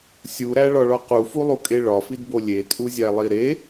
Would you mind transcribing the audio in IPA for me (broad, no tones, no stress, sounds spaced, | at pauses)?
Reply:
sʲ u ɾ æ ɭ ɒ ɭ ɒ q u f u lˠ u kʼ e ɭ ɒ f i d b o lʲ e tʼ u zʲ æ lˠ i ɾ e